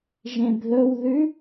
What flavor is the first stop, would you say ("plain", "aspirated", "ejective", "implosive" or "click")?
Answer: plain